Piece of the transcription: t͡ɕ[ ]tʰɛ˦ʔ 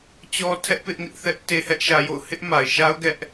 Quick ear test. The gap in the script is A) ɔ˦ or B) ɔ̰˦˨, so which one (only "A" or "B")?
A